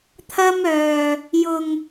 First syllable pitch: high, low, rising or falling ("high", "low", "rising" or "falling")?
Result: high